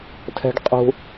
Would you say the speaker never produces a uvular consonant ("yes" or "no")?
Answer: no